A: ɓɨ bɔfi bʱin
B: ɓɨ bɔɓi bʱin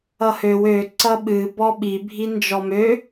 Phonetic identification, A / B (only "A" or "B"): B